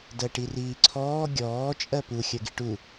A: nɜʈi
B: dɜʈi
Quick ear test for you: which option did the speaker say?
B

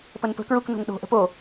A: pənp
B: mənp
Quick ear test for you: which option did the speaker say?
A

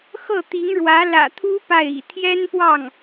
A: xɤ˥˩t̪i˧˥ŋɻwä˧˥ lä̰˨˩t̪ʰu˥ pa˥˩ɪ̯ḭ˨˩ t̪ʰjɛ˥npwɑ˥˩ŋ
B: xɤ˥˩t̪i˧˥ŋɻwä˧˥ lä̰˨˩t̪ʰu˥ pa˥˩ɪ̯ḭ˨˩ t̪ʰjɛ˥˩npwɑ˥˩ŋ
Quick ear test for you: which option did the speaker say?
A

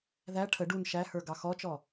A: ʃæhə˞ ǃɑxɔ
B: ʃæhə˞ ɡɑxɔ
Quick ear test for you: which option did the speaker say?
B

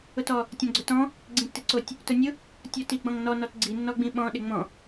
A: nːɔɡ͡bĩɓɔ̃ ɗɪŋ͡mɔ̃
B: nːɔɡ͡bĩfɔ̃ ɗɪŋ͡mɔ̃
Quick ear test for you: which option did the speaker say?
A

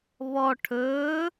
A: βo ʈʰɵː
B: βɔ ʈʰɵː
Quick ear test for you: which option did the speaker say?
B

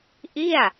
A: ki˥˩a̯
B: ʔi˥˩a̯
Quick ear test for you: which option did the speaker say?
B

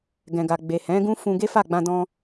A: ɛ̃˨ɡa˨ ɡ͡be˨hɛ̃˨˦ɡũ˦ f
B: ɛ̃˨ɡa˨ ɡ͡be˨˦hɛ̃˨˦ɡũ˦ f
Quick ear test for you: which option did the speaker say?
A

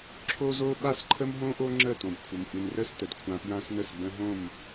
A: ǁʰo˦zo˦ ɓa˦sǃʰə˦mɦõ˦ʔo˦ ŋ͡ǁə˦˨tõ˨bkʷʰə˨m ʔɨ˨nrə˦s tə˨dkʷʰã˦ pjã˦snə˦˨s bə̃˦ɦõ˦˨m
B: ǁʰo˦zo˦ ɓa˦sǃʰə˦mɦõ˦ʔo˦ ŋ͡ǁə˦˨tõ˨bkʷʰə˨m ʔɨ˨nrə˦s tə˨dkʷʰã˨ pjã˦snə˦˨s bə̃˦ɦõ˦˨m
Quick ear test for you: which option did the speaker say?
A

